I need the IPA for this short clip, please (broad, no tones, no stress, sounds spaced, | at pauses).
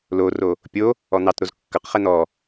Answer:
l o r o | pʲ o | ɔ n̪ ɑ t ɾ o z kː ʌ q χ ɛ n̪ ɔ